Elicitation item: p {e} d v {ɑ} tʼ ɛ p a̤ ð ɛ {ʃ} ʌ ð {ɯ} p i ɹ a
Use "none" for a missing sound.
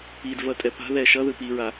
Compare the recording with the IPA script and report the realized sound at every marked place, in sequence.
i, ʌ, ʃ, ɯ

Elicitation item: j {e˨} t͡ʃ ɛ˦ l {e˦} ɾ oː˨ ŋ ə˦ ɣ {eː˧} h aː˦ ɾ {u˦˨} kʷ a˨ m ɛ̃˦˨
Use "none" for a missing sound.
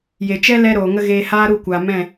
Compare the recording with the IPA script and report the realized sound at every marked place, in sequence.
e˨, ɛ˦, eː˧, u˦˨

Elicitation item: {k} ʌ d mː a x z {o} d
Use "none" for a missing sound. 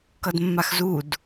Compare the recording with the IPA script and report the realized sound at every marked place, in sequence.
k, u

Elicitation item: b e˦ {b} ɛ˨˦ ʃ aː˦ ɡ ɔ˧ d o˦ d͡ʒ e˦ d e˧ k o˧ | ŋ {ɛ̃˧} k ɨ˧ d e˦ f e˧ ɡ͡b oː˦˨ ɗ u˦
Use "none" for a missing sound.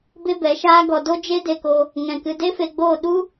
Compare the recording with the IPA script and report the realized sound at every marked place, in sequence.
b, ɛ̃˧

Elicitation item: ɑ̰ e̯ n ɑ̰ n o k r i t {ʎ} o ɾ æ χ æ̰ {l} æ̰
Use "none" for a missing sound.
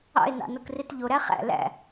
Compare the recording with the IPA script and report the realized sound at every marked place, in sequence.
ʎ, l

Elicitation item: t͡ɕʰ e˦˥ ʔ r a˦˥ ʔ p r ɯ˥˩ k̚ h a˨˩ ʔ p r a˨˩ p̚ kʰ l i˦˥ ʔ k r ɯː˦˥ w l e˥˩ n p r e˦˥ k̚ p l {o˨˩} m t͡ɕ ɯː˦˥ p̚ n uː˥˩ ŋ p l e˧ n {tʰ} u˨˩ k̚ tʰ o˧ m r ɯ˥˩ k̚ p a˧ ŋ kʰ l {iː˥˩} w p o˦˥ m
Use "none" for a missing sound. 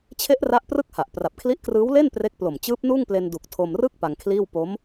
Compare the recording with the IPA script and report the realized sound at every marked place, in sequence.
o˨˩, d, iː˥˩

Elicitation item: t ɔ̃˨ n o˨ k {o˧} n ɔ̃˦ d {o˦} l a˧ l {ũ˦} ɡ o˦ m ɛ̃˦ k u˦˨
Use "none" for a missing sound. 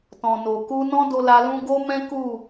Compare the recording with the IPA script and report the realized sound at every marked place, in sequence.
u˧, o˧, ũ˦

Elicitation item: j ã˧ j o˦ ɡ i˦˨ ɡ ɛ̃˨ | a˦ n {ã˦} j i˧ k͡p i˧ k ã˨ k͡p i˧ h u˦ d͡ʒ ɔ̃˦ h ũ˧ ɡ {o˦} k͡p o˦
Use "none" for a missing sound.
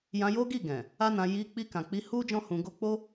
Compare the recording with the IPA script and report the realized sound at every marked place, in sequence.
ã˧, o˦

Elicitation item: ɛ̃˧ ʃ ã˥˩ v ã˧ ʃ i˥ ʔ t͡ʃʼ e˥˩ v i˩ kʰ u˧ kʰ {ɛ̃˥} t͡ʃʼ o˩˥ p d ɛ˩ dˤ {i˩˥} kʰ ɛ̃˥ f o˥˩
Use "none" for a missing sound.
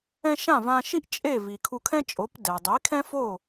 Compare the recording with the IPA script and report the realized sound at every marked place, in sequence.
ɛ̃˥, i˩˥

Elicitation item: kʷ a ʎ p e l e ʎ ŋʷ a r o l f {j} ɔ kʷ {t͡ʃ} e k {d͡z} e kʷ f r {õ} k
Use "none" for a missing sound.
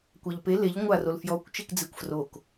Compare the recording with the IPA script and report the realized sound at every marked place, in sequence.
j, t͡ʃ, d͡z, o

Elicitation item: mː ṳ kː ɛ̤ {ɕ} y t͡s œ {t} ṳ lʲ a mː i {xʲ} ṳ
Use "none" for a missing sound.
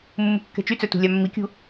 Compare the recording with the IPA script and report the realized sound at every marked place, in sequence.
t͡ʃ, t, kʲ

